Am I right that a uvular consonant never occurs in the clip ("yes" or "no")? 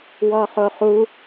no